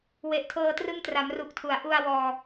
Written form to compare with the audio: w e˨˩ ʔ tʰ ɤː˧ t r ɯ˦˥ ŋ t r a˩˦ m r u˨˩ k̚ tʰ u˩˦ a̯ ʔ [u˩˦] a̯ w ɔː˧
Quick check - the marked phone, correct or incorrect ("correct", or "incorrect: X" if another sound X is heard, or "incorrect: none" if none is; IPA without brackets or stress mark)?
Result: incorrect: u˧